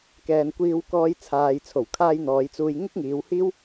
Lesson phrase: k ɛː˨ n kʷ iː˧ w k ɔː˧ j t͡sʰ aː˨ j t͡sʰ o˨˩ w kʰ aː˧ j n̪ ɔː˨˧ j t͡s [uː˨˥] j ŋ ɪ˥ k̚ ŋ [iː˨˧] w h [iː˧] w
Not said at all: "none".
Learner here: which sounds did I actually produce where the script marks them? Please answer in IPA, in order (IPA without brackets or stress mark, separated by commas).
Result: uː˧, iː˨˧, iː˥